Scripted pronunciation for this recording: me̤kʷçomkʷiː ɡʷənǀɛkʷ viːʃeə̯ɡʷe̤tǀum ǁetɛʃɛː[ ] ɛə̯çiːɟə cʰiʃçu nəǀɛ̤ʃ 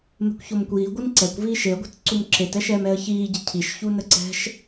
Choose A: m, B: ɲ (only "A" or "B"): A